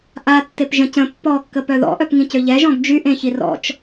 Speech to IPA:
ʔ a tː e p ʒ ə̃ c ə̃ pː ɔ kː ə p œ ð ɔ̰ ʔ œ p ŋ ĩ c ø ʎ ɛ ʒ ɔ̃ ɡ d͡ʒ y ʔ ẽ ç i r ɔ̰ t͡ʃ

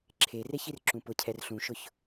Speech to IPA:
ǁʰ e r e ç i r ǁ ũ p ʊ cʰ ɛ r ɬ ũ ʃ ʊ ç

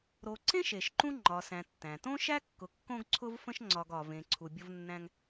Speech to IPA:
ɾ o˨ ǀ ẽ˥ ʃ e˩ ʃ ǃ ũ˦ ŋ͡ǃ ɒ˨ s æ̃˨ tː æ̃˩ t õ˥ ʃ æ˥ kː ʊ˨ kː õ˦ ɡ ǀʰ ʊ˦ v f ə̃˦ ʃ ŋ͡ǀ ɒ˨ ɡ ɒ˩ v ẽ˨ ǀʰ u˨ bʲ ʊ˦ v nː æ̃˦ ŋ

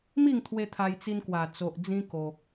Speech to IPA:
m i˥˧ ŋ t̪ʰ w e˧ t̪ʰ a˧ j t͡s i˧ n k w a˨˩ t͡s o˨ ʔ d͡z ĩ˧ k o˨ k̚

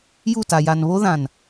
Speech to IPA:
j u˦˨ t a˨ j a˨ n β o˦ ð ã˨ n

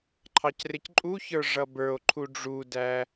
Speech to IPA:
ǃʰ ɑ c r ɪ c ǃʼ u ç ə˞ ʐ ʌ b ə˞ o̯ ǃʰ u ɖ͡ʐ u d æ

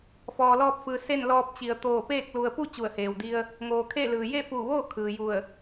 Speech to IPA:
f ɔː˩ l ɔː˧ p̚ f ɯː˩˧ s e˥˨ n l ɔː˧ p̚ t͡ɕ i˩˧ ə̯ t̪ oː˧˩ p eː˥˨ k̚ l u˩ ə̯ p u˥˨ t͡ɕ u˧˩ ə̯ h eː˩ w d i˧ ə̯ | ŋ oː˩ kʰ e˥˨ l ɯː˩ j e˥˨ f uː˧˩ ʋ oː˥˨ kʰ ɯː˩ j u˧˩ ə̯

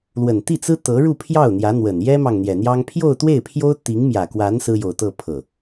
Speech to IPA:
l w ə˨˩ n t̪ i˥˩ t͡s ɹ̩˥ t̪ ɤ˧˥ ɻ u˥˧ pʰ j ɑ˥˩ ʊ̯ n̪ j ä˧˥ n̪ w ə˨˩ n j ɛ˥ m ɑ˨ ŋ n̪ j ɛ˨˩ n̪ j ɑ˥ ŋ pʰ j o˥˧ ʊ̯ t̪ w e˥˩ ɪ̯ pʰ j o˥ ʊ̯ t̪ i˧˥ ŋ m j ä˨˩ k w a˧˥ n s ɹ̩˥ j o˨˩ ʊ̯ t̪ ɤ˥˧ pʰ ɤ˥˩

